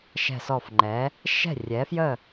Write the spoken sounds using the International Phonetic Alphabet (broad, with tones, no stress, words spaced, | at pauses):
ʃɛ̤˧˩sɔ˧˩fŋ͡ǃɛː˩˥ | ʃɛ̤˥˩rʲɛː˩˥fjə˥˩